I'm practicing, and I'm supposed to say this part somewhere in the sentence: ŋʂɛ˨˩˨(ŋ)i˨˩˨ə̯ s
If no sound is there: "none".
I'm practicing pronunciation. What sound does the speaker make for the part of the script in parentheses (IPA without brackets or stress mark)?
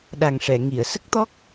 ŋ